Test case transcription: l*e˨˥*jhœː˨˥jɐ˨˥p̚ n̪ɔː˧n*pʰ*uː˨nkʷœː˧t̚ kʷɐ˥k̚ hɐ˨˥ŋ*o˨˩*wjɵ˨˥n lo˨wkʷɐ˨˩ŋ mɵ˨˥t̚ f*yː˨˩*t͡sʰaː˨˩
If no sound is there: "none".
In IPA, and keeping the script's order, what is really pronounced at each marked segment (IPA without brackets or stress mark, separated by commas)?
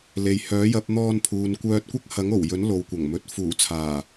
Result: e˨, pʰ, o˨˩, uː˨˩